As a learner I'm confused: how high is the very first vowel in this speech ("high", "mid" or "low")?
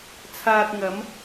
low